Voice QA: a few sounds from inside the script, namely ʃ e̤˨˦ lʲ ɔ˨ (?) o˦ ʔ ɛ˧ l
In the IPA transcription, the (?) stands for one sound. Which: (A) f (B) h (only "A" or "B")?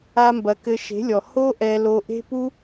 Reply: B